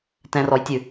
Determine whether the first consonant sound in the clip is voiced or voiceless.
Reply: voiceless